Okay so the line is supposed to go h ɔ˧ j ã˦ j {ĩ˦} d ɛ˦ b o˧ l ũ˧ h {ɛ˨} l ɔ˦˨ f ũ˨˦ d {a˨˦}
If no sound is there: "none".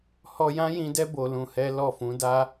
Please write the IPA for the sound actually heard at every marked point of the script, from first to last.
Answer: ĩ˧, ɛ˦, a˦

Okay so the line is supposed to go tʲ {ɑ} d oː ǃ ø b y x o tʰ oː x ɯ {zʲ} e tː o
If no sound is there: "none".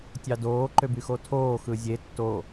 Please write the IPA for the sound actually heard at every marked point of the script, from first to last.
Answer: ɑ, zʲ

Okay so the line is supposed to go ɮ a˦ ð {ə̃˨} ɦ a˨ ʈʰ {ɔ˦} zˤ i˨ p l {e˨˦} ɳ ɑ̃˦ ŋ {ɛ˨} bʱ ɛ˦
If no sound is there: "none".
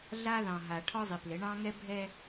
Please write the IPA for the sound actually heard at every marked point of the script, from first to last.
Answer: ɑ̃˨, ɔ˦, ɘ˨˦, ɛ˦

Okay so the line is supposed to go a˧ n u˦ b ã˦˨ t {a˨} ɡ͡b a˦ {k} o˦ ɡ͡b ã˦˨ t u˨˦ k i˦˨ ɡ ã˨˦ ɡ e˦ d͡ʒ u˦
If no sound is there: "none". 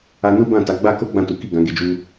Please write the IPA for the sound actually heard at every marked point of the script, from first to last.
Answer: a˨˦, k

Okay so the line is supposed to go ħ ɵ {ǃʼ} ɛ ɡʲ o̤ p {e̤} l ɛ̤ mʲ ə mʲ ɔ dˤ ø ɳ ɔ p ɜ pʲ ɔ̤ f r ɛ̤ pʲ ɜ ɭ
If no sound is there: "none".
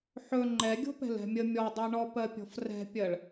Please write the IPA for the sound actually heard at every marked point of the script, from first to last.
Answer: ŋ͡ǃ, ɛ̤

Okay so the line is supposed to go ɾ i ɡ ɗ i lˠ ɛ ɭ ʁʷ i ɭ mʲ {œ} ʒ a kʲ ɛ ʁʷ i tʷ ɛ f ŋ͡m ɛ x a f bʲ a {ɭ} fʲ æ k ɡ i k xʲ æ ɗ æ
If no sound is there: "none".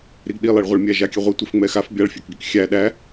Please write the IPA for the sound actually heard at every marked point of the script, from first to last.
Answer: æ, ɭ

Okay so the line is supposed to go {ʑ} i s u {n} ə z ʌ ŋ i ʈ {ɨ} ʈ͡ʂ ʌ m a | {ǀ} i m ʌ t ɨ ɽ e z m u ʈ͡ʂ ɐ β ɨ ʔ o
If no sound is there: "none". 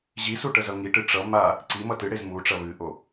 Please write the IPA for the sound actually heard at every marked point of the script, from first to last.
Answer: ʑ, ʈ, ɨ, ǀ

